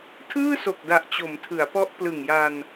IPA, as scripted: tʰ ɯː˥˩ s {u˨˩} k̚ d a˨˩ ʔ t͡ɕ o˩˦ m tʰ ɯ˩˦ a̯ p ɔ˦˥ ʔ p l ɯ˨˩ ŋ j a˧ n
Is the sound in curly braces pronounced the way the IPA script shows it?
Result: no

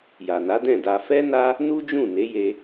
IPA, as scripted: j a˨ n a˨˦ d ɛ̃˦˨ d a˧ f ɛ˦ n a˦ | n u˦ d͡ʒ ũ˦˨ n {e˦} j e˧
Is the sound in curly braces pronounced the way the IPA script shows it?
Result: no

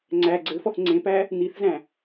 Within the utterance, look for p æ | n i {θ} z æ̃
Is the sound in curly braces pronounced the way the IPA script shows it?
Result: yes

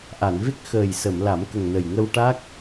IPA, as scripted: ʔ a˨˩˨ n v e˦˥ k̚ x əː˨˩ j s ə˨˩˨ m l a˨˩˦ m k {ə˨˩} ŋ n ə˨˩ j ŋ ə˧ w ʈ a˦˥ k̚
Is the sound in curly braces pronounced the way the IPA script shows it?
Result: yes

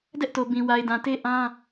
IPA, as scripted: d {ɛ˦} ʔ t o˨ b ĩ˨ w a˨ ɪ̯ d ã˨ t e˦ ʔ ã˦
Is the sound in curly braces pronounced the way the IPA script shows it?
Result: yes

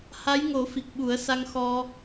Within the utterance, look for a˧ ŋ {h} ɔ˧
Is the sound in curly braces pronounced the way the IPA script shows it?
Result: no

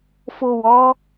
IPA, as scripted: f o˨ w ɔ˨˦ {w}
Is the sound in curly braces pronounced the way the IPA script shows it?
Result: no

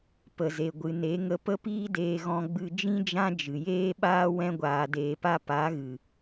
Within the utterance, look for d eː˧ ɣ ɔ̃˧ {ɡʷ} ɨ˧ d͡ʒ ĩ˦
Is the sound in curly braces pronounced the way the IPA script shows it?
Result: no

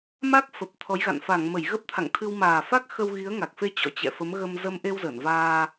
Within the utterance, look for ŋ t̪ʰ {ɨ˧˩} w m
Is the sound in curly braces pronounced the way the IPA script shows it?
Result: no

